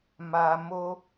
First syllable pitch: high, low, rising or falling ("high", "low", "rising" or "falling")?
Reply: low